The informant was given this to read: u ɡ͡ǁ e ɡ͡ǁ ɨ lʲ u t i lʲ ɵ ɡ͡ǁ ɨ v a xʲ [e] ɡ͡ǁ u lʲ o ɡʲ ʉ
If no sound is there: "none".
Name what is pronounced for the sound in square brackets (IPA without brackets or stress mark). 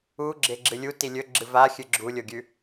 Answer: ɨ